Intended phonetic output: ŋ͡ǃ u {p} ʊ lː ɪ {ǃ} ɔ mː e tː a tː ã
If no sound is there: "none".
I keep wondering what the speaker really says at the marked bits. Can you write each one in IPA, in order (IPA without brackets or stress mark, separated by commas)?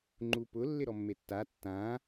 p, ɾ